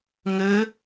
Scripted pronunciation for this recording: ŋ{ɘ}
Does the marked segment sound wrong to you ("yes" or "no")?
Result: no